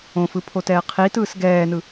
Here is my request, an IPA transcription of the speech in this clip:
õ f ɯ pʰ o t ɛː qʰ i t ɯː s ɡ ɛː n ɯ

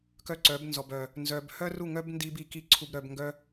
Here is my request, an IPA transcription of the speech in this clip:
k œ˦ ǀ œ˨˦ b n z ɔ˨ b œ˨ | n z œ˧ b h œ˦ r u˦˨ ŋ œ˦ b n d i˦ b i˧ k i˦ ǀʰ u˧ b ɾ œ˧ b ŋ ɡ œ˦

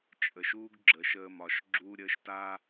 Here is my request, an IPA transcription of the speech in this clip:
t͡ʃʼ ə˨ ʃ uː˦ ɡ ɡ͡ǁ əː˨ ʃ əː˦ m ɒ˨ ʃ ɡ͡ǁ uː˦ ɾʲ əː˨˦ ʃ t aː˦

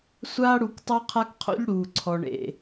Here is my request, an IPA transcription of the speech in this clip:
sʷ aː˦ ɽ u˨˦ k tˤ o˦ qʰ a˦ k qʰ o̰˦ ʎ ɽ uː˨ ǀʰ ɔ˨ ɳ ḛ˨

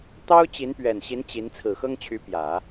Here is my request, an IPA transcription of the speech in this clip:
t̪ ɑ˥ ʊ̯ t͡ɕ i˧˥ n p ɥ ɛ˨˩ n ɕ i˧˥ n t͡ɕ i˧˥ n t͡sʰ ɹ̩˨˩ x ɤ˥ ŋ t͡ɕʰ y˧˥ p j ä˨˩˦

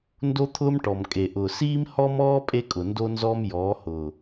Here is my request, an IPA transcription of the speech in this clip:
n d o˦ t̪ʰ ʊː˦ m ʈ ɔ˨ m kʼ e˨ ʔ ʊː˨ s iː˦ m h ɔ˦ m ɔː˦ pʼ e˦ kʼ ʊ˨ n d o˦ n z ɔ˦ m j ɔː˨˦ h ʊː˨

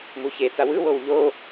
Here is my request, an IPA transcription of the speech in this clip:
m u ç e t͡s a w ɯ w o w ʎ o

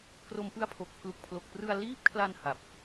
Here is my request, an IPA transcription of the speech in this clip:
k r o˧ m p ɯ˦˥ a̯ pʰ o˨˩ k̚ pʰ l u˨˩ k̚ pʰ l o˨˩ k̚ p r ɯ˧ a̯ l iː˦˥ p̚ kʰ l a˧ n h a˨˩ p̚

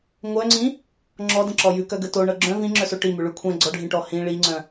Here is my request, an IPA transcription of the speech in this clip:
ŋʷ œ ŋ͡ǀ ĩ | ŋ͡ǁ ɔ d ə̃ ǁ ɔ j ʉ k œ ɡ ə t o ɳ ɤ ɡ͡ǁ œ̃ v ĩ ŋ͡ǁ œ s o ʈ i m ʉ ɭ ʉ kʷʰ ɛ̃ ɡ͡ǀ ɔ ɖʱ ĩ ʈ ɔ h ĩ ɭ i ŋ͡ǀ œ̃

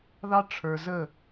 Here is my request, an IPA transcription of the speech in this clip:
ð ɑ˦ ʈ͡ʂʰ ə˞˧ z ə˦˨

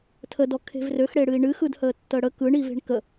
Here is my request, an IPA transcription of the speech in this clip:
tʰ ə d ɔ kʰ e̤ v r ø x ɽ e ɽ ɨ i̯ ɳ ɨ x ɯ d h əː tː əː ɽ ə k ɯ ɳ i v e̤ ɳ k ə

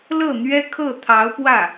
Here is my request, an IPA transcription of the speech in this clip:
l ɤ˥˩ n̪ ɥ ɛ˥ kʰ ɤ˥˩ t̪ʰ ɑ˧˥ ʊ̯ p w ä˥˩

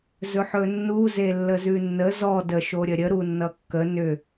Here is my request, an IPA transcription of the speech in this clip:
z ɵ ħ ɵ nː u z e lː ə z ʉ nː ə z ɔ d ə ʃ o ɾʲ ə ɾʲ ə ɾ u nː ʌ kː ə n ʏ

